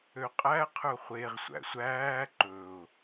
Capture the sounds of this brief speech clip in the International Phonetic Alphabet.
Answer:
ø qʼ æ qʰ ɵ χʷ e ʁ sʷ æ̰ sʷ æː ǃ ɵ ʊ̯

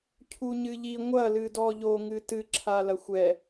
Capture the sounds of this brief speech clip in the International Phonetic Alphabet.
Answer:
cʰ u ɲ ɨ ʎ i ŋʷ ɐ l ɨ d ɔ ʎ o ŋ ɨ t ɨ ǁʰ a l ɐ xʷ ɛ

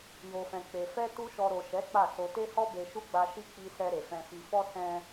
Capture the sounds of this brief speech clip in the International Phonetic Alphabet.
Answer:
j o˧ f ɛ̃˧ k͡p e˧ f ɛ˦ t u˦ ʃ ɔ˧ ɾ o˨ ʃ ɛ˨˦ k͡p a˦˨ s o˧ t e˦ h ɔ˦ b e˧ ʃ u˦ ɡ͡b a˧ ʃ i˦ k͡p i˧ s ɛ˧ ɾ e˨ f ɛ̃˧ f i˧ f ɔ˦ s ɛ̃˧

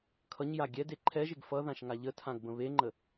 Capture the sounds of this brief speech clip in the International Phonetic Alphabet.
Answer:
kʰ ʌ ɲ j a ɡʲ ɛ d e ǃʰ ɛ ʒ e ɡ f ʌ ð ã ʃ ŋ a ʎ ə tʰ ã ɡ b ə̃ β e ŋ͡ǃ ə

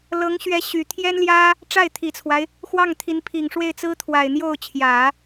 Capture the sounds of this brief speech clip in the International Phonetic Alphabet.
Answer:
l ɤ˧˥ ŋ ɕ ɥ ɛ˧˥ ɕ y˨˩ t̪ʰ j ɛ˥ n l j ä˥ | ʈ͡ʂ a˥˩ ɪ̯ t̪ʰ i˨˩ t͡sʰ w a˦ ɪ̯ | x w ɑ˥˩ ŋ t̪ʰ i˧˥ n pʰ i˨˩ ŋ ʂ w e˥˩ ɪ̯ t͡s ɹ̩˥ t̪ʰ w a˨˩ ɪ̯ n̪ j o˥˩ ʊ̯ t͡ɕʰ j ä˨˩˦

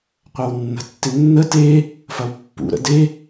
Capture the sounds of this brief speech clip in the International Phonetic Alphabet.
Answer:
qʷ ɐ w nː ə̤ tː ɪ nː ə t e | f ɐ w pː ṵ ɾ ə̰ d e

